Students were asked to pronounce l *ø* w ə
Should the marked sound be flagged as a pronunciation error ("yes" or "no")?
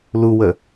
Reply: yes